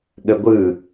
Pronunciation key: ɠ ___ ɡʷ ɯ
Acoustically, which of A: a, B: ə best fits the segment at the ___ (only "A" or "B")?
B